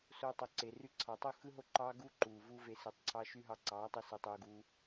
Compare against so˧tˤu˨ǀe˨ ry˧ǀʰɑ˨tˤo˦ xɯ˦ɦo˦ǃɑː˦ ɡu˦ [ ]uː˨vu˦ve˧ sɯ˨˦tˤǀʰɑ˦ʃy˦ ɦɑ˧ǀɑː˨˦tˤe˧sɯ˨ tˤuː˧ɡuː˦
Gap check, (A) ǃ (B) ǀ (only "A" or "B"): A